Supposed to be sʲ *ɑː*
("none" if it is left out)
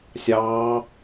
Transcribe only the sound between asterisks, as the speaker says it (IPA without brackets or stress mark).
ɑː